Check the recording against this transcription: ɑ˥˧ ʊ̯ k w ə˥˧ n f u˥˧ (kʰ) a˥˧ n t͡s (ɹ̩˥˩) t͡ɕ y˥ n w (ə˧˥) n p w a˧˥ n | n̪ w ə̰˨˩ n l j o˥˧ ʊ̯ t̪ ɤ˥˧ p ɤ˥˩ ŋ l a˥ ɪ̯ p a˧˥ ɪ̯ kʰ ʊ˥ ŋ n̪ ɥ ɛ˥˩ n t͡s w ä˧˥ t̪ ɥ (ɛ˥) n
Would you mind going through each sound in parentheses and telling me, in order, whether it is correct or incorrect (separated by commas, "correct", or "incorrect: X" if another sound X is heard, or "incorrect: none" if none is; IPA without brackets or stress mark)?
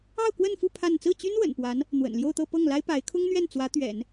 incorrect: pʰ, correct, incorrect: ə̰˨˩, incorrect: ɛ̰˨˩˦